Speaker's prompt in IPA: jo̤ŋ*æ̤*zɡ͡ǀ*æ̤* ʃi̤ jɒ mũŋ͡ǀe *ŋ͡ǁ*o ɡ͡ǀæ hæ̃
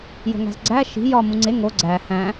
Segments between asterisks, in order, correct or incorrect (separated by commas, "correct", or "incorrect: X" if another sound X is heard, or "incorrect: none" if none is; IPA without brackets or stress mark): correct, incorrect: æ, incorrect: ŋ